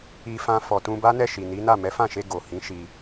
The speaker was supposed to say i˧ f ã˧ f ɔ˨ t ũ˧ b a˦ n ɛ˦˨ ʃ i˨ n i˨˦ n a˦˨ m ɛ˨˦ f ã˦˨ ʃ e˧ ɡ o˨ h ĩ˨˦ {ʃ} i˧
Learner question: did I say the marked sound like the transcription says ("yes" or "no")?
yes